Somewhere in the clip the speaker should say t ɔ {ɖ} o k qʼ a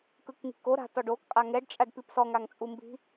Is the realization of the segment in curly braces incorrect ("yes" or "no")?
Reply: no